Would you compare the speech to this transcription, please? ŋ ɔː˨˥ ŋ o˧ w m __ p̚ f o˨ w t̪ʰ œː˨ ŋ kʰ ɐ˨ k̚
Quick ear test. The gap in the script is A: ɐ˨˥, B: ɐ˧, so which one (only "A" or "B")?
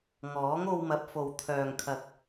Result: A